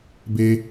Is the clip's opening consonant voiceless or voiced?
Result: voiced